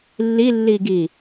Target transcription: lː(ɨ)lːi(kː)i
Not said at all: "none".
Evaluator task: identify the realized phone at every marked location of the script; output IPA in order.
i, ɡ

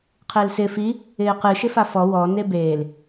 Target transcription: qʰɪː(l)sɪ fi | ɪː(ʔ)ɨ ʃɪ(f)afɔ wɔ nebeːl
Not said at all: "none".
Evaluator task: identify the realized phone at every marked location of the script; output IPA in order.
l, q, f

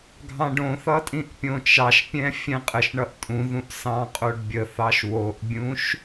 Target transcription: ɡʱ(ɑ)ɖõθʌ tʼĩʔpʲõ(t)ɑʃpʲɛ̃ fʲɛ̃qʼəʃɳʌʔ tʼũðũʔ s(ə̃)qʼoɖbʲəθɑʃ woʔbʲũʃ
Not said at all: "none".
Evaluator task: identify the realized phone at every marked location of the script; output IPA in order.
ɑ̃, t͡ʃ, ɑ̃

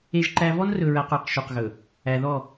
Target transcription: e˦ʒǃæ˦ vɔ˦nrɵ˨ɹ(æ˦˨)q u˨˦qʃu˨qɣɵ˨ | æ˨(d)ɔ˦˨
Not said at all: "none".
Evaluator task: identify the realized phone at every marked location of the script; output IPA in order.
æ˨, ð

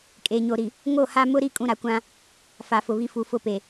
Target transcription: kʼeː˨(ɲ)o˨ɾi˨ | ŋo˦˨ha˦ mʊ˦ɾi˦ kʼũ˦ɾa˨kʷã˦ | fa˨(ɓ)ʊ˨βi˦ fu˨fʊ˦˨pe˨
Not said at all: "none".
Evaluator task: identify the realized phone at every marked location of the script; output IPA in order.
ɲ, f

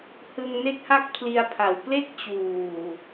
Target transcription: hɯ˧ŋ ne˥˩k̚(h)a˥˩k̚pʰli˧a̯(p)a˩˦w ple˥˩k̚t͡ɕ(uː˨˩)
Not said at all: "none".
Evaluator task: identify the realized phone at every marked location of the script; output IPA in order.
h, pʰ, uː˨˩

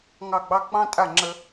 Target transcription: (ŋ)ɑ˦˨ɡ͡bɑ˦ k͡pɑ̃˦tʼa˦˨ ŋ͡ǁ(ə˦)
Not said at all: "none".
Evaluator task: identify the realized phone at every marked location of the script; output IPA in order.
ŋ, ə˦

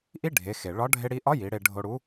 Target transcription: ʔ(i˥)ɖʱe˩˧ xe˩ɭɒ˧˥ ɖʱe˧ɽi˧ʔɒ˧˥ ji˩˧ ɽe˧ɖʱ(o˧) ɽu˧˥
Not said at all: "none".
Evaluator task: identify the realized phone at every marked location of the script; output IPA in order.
i˥, o˧

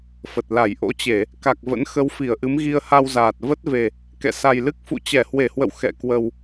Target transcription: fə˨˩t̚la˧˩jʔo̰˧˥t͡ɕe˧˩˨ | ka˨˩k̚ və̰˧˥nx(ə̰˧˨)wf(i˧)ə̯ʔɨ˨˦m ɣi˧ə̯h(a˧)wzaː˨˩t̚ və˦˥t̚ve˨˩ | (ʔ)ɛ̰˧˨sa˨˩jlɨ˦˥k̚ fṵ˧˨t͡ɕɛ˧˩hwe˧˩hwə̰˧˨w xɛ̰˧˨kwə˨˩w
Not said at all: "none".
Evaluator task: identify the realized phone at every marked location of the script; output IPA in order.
ə˨˦, i˧˩, a˧, k

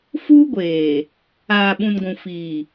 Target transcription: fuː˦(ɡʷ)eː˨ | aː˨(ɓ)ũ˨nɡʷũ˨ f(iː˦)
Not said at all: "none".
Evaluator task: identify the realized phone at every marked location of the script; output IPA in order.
ɡʷ, ɓ, iː˨

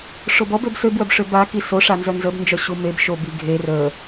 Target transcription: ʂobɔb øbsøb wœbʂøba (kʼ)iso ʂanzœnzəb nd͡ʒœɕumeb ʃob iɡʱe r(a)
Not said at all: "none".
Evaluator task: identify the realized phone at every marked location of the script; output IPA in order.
k, ə

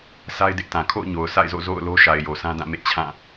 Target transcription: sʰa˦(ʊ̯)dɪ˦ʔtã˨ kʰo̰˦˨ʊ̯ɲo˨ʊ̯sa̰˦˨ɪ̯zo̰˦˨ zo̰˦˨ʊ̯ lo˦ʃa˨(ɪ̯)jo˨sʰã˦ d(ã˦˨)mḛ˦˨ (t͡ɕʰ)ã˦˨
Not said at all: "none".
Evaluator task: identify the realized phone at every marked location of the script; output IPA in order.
ɪ̯, ɪ̯, ã˦˨, t͡ɕʰ

